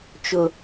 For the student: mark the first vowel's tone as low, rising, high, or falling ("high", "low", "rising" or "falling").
low